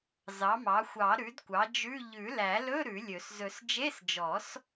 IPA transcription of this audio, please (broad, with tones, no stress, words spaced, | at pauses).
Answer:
zɑ˩˥mɑ˩˥ xʷɑ˨˩˦ ɾʉ˩˥dkʷɑ˩˥ d͡ʒʉ˧˥˧ ʎʉ˨˩˦læ˨˩˦lɵ˧˥˧ ɾʉ˨˩˦lʲɵ˨˩˦s zɵ˨˩˦sd͡ʒe˧˥˧sd͡ʒɔ˨˩˦s